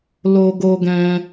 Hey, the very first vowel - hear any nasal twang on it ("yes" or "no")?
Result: no